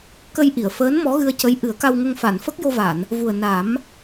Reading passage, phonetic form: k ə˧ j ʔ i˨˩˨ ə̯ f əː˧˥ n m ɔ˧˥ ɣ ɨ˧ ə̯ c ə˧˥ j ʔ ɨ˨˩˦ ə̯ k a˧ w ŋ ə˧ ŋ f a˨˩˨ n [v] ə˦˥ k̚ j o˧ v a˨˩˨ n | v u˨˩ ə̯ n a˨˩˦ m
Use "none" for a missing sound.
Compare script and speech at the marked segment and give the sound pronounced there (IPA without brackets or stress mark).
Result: f